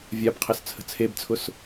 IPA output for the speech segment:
vʲ a b qʰ ɛ s t͡sʰ ə̤ t͡sʰ e b t͡sʰ ʊ s

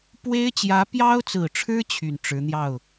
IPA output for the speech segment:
p w e˥ ɪ̯ t͡ɕ j ä˧˥ p j ɑ˥ ʊ̯ t͡s ɹ̩˨˩ ʈ͡ʂʰ ɻ̩˥ t͡ɕʰ y˨˩ n ʈ͡ʂ ɻ̩˧˥ n̪ j ɑ˥˩ ʊ̯

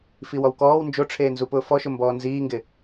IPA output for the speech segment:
f i w ɔ w k ɔː w n d͡ʒ o ʈ͡ʂʰ eː n z u p ʊː f ɔ ʃ ʊ m b ɔː n z iː ŋ ɡ ɪ

